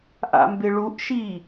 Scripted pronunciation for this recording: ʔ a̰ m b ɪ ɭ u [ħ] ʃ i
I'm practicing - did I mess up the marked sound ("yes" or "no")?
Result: yes